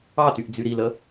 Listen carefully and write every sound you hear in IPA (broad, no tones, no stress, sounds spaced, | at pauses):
ɑ t y ʔ d͡z y ɾ i l ə